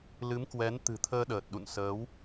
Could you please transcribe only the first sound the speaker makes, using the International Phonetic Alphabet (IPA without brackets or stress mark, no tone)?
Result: l